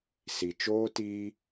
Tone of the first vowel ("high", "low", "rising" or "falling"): low